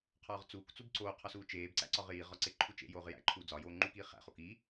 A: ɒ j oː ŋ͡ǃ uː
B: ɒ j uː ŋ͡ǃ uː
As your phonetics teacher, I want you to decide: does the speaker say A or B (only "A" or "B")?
A